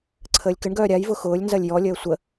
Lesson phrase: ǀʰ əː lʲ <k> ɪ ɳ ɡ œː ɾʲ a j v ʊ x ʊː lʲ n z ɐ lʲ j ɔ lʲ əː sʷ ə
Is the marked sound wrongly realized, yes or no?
no